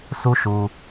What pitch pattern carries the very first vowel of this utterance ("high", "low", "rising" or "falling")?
high